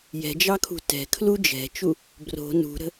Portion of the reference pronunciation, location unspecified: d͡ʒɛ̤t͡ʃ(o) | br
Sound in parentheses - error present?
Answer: yes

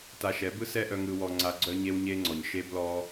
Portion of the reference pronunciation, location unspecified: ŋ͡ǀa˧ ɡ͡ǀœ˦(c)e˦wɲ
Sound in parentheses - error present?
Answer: yes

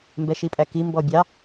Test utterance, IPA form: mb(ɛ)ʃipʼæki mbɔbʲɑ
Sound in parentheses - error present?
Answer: no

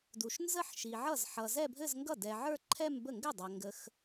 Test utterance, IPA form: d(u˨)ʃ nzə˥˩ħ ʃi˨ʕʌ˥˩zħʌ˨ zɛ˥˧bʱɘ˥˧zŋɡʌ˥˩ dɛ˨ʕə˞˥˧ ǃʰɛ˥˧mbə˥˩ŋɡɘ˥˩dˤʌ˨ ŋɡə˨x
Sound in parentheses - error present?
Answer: no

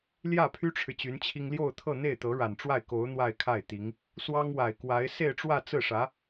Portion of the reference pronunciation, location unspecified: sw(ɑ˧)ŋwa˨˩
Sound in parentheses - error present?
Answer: yes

